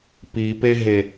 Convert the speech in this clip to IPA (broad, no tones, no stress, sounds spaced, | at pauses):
p i p e ɦ e